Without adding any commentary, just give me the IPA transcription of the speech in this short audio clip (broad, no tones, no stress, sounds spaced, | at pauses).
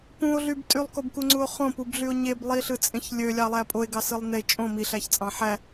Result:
p ũ o̯ ɮ y b tʼ y lˠ k o b k u ŋ͡ǀ u o̯ χ õ p u b ɮ y o̯ ɲ e b lˠ i ɬ ɯ t͡sʼ ẽ ç lʲ ø lʲ ɑ lˠ æ pʼ o e̯ ɡ ɑ s ɯ lˠ n e t͡ʃʼ õ m i ɬ æ ç t͡sʼ ɑ̃ ħ æ